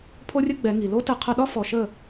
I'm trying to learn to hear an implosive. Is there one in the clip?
yes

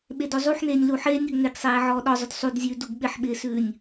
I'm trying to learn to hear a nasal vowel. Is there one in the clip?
no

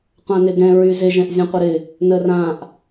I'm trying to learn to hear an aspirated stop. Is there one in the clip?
no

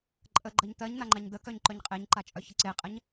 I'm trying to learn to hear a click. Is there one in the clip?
yes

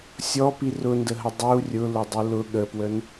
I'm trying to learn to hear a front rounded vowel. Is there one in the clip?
no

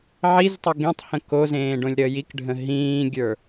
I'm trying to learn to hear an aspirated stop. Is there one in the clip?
no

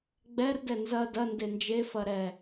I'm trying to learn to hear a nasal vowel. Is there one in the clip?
no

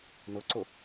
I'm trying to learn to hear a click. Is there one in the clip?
yes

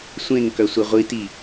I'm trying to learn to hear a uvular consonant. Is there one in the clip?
yes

